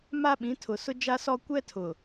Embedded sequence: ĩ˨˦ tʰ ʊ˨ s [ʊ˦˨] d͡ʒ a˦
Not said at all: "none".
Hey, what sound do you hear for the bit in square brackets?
ʊ˦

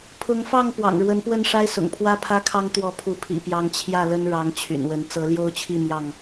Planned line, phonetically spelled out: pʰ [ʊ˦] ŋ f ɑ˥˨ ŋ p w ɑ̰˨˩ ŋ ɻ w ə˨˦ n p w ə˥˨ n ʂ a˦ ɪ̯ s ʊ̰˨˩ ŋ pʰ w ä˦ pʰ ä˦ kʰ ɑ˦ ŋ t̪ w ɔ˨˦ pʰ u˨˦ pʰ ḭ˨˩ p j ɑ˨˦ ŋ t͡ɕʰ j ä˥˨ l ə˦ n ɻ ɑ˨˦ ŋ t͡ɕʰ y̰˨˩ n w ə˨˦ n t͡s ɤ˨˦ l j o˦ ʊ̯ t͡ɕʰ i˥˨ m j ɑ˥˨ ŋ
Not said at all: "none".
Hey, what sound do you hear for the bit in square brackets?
ʊ˨˦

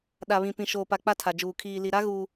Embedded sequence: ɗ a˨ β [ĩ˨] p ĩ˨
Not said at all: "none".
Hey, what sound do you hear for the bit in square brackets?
ĩ˨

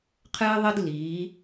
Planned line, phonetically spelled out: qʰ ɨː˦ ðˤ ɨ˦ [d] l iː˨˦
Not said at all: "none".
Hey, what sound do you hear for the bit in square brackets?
d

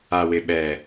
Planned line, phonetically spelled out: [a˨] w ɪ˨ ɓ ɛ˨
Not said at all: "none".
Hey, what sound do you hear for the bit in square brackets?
a˨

